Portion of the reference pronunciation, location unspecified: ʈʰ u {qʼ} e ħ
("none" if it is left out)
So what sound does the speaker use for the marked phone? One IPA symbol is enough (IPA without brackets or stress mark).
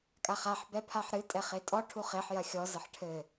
χ